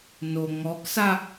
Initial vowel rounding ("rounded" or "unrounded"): rounded